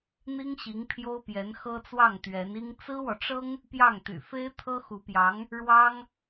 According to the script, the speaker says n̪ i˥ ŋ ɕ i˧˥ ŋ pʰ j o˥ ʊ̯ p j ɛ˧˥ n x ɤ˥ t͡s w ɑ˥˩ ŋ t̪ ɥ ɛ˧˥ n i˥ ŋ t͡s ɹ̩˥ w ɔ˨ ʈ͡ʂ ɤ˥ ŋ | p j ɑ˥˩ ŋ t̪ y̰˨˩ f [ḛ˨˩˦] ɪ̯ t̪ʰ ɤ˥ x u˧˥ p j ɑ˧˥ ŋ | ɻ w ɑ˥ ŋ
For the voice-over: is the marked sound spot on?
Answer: no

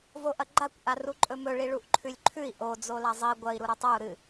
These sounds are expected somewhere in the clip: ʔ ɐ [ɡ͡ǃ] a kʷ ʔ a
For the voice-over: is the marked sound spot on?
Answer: yes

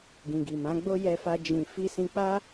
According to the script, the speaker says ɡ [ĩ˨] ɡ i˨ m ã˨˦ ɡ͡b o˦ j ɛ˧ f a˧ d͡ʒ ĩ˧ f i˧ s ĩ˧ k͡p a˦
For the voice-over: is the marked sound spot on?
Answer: yes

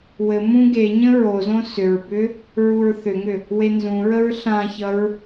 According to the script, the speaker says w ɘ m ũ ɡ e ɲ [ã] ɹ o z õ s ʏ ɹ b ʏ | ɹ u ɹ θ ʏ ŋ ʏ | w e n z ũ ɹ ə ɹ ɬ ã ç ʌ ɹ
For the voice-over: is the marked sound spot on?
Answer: no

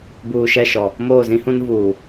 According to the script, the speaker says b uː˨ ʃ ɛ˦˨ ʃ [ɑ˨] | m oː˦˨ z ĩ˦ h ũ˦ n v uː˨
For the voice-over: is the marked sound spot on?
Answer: no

